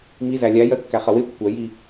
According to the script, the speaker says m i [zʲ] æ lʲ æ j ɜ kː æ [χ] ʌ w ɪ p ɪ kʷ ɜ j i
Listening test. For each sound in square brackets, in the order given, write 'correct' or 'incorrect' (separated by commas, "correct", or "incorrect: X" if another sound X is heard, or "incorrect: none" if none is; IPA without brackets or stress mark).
incorrect: z, correct